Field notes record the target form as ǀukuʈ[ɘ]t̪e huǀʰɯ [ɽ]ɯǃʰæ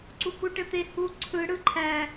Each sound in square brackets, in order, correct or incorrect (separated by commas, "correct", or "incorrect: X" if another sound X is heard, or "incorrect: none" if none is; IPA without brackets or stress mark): correct, correct